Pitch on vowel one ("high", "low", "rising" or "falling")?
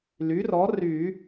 rising